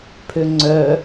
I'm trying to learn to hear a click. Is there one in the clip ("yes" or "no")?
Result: yes